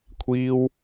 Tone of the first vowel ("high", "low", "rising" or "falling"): high